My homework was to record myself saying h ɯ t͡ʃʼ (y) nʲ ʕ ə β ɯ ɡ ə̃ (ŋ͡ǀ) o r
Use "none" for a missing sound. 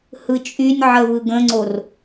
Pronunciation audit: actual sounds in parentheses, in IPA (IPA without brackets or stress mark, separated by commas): y, ŋ͡ǀ